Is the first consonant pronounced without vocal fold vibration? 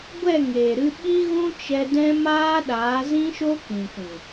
no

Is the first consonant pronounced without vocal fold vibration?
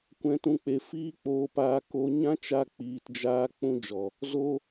yes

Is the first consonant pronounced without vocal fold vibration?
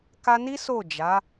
yes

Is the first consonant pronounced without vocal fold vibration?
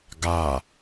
no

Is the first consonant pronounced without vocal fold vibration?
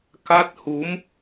yes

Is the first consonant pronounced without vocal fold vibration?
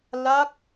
no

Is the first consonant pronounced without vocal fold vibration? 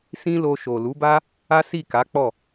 yes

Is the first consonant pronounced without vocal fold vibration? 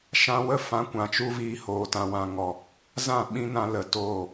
yes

